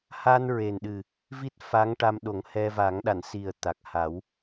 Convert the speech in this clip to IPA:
ha˧nɹe˨˩n ɗɨ˨˩ | vi˦˥t̚fa˧˥ŋʈa˧m ɗo˨˩˦ŋhɛ˧va˨˩˦ŋɗa˨˩˨n si˨˩ə̯ t̪a˨˩k̚ha˨˩˦w

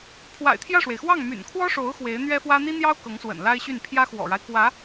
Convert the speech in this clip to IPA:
pʰwa̰˨˩ɪ̯t̪ʰjä˥˩ʂwe˩ɪ̯xwɑ˥˩ŋ my̰˨˩nkʰwɔ˥ʂo˧˥ʊ̯ xwe˧˥ɪ̯n̪ɥɛ˥fwä˥ n̪i˥n̪jɑ˥ʊ̯ kɤ˧˥ŋswə̰˨˩nla˥ɪ̯ɕy˥˩n pʰjä˥xwɔ̰˨˩ɻa˦ɪ̯ kwä˧˥

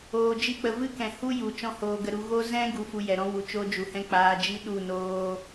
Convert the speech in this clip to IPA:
oː˧d͡ʒi˦k͡pə˧ vɨ˦kɛ̃˨hu˦ ju˨ t͡ʃɔ̃˦hoː˧ɡə˧ɾu˧ ɣo˦ zɛ̃˦ ɡu˧fu˧jɛ˨ɾɔ̃˦ wu˨t͡ʃo˦d͡ʒu˨hɛ̃˦ k͡paː˧d͡ʒi˦ ɗu˦˨noː˦

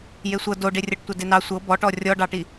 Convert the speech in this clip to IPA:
jesʷɤ doɖerʲɤʈtʷɑ denɑ sʷɤ bɔʈɔ rʲɔɖɑʈi

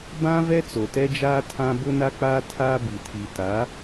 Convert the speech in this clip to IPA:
bã˦ vɛ˦t͡so˨tɛ˦d͡ʒaː˦ tʰã˦ bʊ˦na˦k͡paː˦ tʰaː˦bi˨ tʰi˨ta˨˦

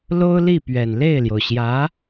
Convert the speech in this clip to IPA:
lo˥ʊ̯li˥˩pɥɛ˨˩n le˥˩ɪ̯ljo˩ʊ̯ɕjä˧˥

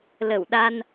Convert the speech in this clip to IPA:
lə˧˩wɗa˧n

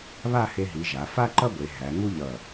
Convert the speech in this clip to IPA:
βa˥˧he˧ɦi˩˧ ʒa˩˧fa˥ ǃʌ˥ɡʷe˩˧ ɦæ˩˧ ŋu˥ʎʌ˧˩

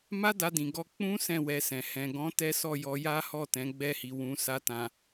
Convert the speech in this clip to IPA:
ma˦da˧dĩ˨ɡɔ˧ k͡pũ˦ sɛ̃˦˨wɛ˧sɛ̃˨ hɛ̃˨ɡɔ̃˨˦ tɛ˦sɔ˦˨ jɔ˧ja˦hɔ˦˨ tɛ̃˨˦ɡ͡bɛ˦˨hi˨wũ˧ sa˧tã˨

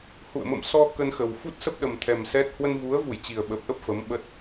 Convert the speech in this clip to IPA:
hṵ˧˨ə̯ mə̰˧˨msɔ˧ kə˧nxə˨˩w fu˦˥t̚sə˦˥p̚ɗə˨˩mt̪ʰɛ˨˩m sɛ˦˥t̚ hwə˧nvu˨˦ə̯vu˧˩j t͡ɕi˨˩ə̯ɓə˨˩p̚ʔə˦˥p̚ fə˨˦mɓə˦˥t̚

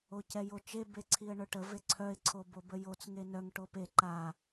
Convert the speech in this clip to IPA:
ocɛjot͡ʃe beǀʰiə̯ɳœʈə veǀʰœɪ̯ ǀʰobobəjot͡s ŋenœŋ ʈope ǃa

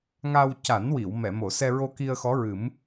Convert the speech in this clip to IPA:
ŋa˧w ca˨˩˦nwi˨˩˨w mɛ˨˩˨mo˨˩˨sɛ˧ɹo˧ ki˧ə̯xɔ˧˥ɹɨ˨˩˦m

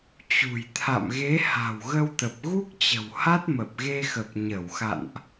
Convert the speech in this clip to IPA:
t͡ɕṳ˨˩jt̪ʰa̰˧˨mɣe˨˦ ha̤˨˩wɣə˧wt̪ə˨˩p̚ ɣu˦˥k̚t͡ɕə̤˨˩w ha˦˥t̚mə˨˩p̚ɣe˧xə˨˩p̚ ɲə˧˩wxa̰˧˨nʔ

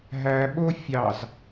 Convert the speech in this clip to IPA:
ɦæɓo fʲɑz

